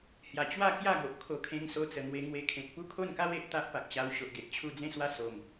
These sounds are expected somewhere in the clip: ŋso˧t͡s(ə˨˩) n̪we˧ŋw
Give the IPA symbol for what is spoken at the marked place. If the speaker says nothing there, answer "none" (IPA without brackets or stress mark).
ə˨˩